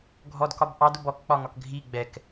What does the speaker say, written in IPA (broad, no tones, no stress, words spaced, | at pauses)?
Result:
ɡʱɔdkɒb ʔɑdʊb ɔkk͡pɒŋɒk ɡʱi ɡ͡bɛk